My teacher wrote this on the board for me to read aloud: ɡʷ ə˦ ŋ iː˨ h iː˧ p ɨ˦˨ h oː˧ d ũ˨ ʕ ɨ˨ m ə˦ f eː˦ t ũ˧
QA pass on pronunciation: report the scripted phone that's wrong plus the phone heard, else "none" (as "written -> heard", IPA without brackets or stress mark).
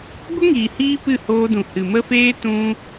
ʕ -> h